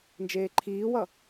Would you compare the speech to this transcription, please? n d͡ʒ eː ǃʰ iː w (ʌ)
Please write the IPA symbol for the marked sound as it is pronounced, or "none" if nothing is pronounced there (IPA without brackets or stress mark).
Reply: ʌ